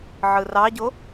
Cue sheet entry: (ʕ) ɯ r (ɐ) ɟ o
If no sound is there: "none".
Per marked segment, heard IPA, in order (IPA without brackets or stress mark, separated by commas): ʕ, ɑ